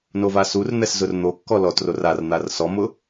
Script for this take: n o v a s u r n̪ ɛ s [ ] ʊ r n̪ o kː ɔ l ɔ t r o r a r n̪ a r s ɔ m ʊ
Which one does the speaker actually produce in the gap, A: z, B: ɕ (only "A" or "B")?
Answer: A